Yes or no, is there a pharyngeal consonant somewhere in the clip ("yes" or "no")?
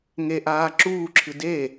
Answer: no